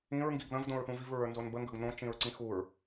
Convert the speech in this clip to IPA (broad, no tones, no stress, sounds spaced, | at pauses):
ĩ ɹ ŋ ɡ i ɡ ð ə̃ v d õ ɹ θ ũ v i v ɹ ə˞ n z o n b ə ŋ ɡ ə ɡ n õ t͡ʃ ĩ ɹ ǀ ĩ x u ɹ